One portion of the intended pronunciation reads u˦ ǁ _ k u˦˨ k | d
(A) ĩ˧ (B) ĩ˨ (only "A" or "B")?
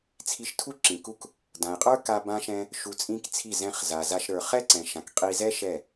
B